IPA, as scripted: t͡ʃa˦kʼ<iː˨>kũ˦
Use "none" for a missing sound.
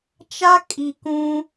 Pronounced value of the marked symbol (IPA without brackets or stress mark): i˨